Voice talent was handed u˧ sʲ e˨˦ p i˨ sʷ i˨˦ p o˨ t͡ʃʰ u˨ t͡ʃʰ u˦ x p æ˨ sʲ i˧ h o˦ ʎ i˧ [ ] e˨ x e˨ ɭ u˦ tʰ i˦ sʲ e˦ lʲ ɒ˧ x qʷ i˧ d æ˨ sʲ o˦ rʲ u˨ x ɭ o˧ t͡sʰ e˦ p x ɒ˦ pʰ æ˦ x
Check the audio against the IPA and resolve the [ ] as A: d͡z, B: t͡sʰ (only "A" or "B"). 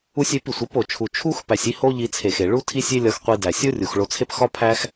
B